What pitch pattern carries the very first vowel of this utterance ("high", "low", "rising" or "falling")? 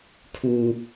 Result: low